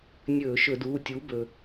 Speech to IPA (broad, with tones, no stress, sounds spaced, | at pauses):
nʲ ɵː˧˩˧ ʃ ɵ˧˩˧ d uː˩˧˩ tʲ uː˩˥ b ɵ˩